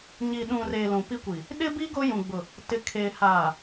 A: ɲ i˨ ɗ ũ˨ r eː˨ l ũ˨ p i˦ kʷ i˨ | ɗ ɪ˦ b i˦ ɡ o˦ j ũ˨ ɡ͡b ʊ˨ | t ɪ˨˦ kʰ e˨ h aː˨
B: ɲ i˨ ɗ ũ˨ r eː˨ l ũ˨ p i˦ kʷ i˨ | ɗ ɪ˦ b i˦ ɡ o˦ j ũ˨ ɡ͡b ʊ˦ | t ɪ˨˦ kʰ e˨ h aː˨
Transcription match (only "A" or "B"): A